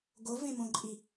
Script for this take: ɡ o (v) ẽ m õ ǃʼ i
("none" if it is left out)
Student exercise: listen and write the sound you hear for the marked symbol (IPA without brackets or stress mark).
v